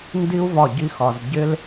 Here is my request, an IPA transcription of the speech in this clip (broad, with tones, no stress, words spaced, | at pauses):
ndi˦u̯ vɒ˦˨ɟi˦xɒ˧z ɟɪ˦l